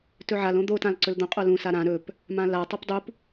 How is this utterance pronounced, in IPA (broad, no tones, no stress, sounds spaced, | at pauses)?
t ɵ ʕ a l õ d̪ o t ã l ǀ ɵ l d̪ õ qʼ o l ũ s a ɾ ã ɾ ɵ p | m ã l a tˤ o p dˤ u p